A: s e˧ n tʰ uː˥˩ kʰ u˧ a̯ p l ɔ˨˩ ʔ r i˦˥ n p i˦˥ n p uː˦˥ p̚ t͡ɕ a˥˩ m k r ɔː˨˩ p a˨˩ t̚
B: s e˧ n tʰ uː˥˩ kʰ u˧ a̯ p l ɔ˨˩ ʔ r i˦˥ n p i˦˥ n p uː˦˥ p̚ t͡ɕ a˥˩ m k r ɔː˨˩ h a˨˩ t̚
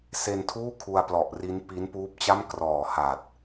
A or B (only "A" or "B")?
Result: B